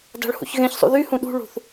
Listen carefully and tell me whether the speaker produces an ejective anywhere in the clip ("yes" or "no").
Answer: no